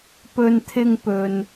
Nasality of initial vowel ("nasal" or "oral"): oral